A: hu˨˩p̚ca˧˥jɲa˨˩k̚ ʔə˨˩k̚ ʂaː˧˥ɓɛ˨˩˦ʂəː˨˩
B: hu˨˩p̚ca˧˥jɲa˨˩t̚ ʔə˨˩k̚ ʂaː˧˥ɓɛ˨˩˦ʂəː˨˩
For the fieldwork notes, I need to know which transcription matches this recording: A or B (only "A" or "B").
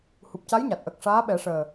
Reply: B